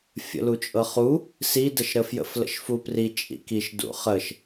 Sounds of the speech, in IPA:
fʲə̰lut͡ʃʼɤχu | si dəʃɾəfjə̰f lə̰ʃfupri t͡ʃʼḭkiʃ dṵχəʃ

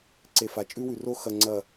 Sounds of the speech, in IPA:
ǀe˨ fa˨t͡ʃʼʉ˦wʉ˨ro˦ xɐ˨ ŋ͡ǀɐ˨

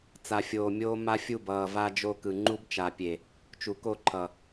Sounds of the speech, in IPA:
t͡sa˨fʲoː˨mʲoː˦ ma˦fʲu˦˨bʌː˨ va˦d͡ʒo˦kɯ˨ ŋ͡ǃu˦bt͡ʃa˨pʲe˨ | t͡ʃu˨ko˦˨ǃʰʌ˨

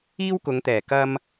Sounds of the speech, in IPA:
iː˥wkʊ˨˧ŋt̪ɛː˨˩ kɐ˧m

